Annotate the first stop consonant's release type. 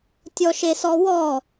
plain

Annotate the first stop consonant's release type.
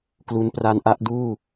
plain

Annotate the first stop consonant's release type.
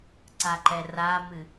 click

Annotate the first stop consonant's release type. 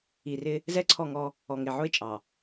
click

